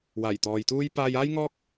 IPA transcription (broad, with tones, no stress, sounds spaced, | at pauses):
w aː˨˩ j t̪ ɔː˨ j t̪ uː˥ j p aː˧ j aː˥ j ŋ ɔː˥ k̚